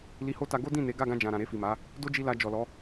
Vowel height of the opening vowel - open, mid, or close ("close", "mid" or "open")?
close